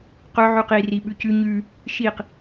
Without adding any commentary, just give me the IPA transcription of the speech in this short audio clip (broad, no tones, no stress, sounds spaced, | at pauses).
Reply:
q ɵ ʕ y q i r i ɓ ʉ c ʉ ɲ ʉ | ʃ i q